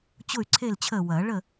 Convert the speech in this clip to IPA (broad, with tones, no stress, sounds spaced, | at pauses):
t͡ɕ ʊ˥˨ y̯ ǀʰ e˥˨ l t͡ɕʰ əː˥˨ w ɐː˨˩˦ ɭ ə˥˨